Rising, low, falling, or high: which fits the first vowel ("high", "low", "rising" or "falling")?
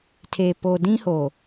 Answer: low